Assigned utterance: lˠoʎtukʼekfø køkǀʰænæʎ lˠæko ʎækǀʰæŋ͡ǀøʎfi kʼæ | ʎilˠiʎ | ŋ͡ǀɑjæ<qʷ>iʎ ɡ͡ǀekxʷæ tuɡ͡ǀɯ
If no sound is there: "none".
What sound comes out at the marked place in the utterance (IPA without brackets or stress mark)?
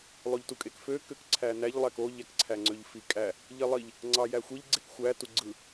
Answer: xʷ